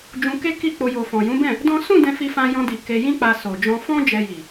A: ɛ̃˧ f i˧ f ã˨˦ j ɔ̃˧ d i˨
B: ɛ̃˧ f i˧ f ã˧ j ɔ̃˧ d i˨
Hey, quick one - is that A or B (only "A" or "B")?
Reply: B